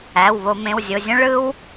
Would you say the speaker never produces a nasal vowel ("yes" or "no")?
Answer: no